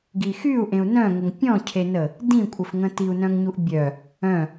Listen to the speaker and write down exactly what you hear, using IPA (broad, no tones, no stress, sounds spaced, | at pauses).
ɡ i x y u̯ ʔ ẽ u̯ n œ̃ ŋ ə ŋ pʲ ɔ̃ cʰ e n ə | d ĩ kʷʼ ə f ŋ ə̃ t i u̯ n œ̃ ŋ ɲ u ʔ bʲ œ | œ̃